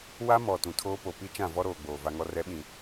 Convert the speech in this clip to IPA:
w a˦ m ɔ˨ t ũ˨ tʰ oː˦ p o˨ p i˦ t͡ʃ ã˦˨ v ɔ˦ ɾ oː˨ ɡ͡b oː˨ v a˨ ŋ ɔ˨ r ɛ˨˦ ɓ ĩ˨

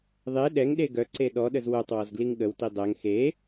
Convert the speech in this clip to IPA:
ðˤ e ɗ ɛ ŋ ɗ e ɡ œ ǀ e ɗ ɔ ɗ ə z w œ tˤ w ɔ z ɡ l i ŋ ɠ ə w t i dˤ ɛ ŋ x e

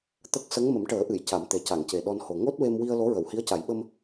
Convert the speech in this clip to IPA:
t̪ ə˦˥ k̚ s ə˧˥ ŋ m ə˨˩˦ m ʈ əː˨˩˦ ʔ ɨ˨˩˨ j c a˨˩˦ m t̪ e˨˩ c a˨˩˨ ŋ c e˨˩ ɗ ɔ˧ n h o˨˩ ŋ o˦˥ t̚ w e˧ m w i˧ ə̯ l o˧˥ ɹ ə˨˩˨ w h i˧˥ ə̯ c a˨˩˦ j ɓ ə˧ m

